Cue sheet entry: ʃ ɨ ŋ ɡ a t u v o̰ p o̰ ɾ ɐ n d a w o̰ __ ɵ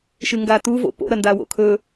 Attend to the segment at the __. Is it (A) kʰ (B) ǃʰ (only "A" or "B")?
A